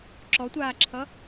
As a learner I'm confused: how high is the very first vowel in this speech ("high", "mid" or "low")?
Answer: mid